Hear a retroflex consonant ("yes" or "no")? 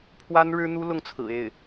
yes